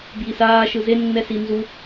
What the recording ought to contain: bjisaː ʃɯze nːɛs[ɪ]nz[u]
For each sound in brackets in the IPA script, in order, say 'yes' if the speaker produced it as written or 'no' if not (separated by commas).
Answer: no, yes